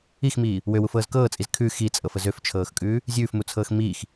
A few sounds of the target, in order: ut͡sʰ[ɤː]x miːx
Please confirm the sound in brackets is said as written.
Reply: yes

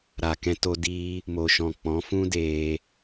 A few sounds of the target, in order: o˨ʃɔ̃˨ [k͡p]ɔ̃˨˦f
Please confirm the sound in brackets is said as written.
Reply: yes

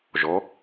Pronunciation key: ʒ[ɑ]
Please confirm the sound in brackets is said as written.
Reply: no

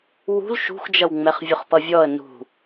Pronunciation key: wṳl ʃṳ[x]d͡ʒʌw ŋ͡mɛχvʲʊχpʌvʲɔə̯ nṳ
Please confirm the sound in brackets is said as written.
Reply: yes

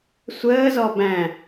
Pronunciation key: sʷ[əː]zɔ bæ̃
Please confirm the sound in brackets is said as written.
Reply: yes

